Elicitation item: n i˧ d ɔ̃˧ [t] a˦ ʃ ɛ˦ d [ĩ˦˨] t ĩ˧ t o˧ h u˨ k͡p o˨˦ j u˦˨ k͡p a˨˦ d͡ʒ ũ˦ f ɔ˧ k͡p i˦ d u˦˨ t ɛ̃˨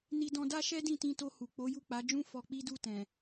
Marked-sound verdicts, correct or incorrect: incorrect, correct

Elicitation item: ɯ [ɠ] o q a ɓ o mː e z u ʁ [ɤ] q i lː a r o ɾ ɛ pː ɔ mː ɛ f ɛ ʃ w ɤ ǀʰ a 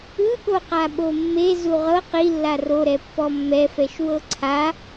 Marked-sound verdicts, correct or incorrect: correct, correct

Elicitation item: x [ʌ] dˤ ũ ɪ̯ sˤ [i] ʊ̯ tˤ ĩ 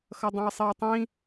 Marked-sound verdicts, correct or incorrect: correct, correct

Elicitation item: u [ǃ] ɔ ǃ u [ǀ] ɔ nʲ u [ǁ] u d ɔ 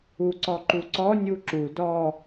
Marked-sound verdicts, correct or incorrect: incorrect, correct, correct

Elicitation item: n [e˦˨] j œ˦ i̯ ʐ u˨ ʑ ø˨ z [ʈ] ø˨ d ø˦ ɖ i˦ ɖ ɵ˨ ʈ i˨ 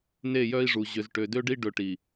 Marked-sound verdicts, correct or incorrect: correct, correct

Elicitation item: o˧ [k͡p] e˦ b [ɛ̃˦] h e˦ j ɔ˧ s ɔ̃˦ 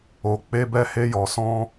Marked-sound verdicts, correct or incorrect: correct, incorrect

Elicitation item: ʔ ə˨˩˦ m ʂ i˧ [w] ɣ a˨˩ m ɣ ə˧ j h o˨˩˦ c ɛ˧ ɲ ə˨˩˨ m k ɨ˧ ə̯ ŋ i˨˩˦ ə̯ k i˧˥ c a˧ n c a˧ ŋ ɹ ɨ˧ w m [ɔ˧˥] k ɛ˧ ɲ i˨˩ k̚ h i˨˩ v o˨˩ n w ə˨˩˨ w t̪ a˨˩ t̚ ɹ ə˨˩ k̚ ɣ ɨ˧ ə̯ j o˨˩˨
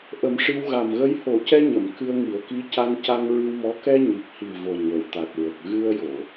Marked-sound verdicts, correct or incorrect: correct, correct

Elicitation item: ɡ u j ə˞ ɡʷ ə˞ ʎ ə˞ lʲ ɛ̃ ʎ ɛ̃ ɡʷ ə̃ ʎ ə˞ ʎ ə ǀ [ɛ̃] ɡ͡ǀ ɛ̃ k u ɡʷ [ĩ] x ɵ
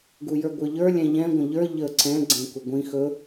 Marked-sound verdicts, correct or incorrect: correct, correct

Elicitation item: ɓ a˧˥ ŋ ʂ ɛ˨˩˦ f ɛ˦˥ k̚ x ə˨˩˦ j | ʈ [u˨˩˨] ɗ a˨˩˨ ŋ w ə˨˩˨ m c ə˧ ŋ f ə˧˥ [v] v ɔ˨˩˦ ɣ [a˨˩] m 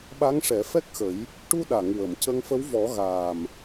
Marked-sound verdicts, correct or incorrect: incorrect, incorrect, incorrect

